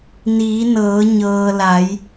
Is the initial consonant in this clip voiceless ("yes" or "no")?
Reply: no